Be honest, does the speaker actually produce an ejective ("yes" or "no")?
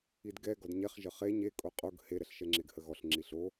yes